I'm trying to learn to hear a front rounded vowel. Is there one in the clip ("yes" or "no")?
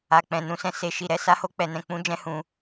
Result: no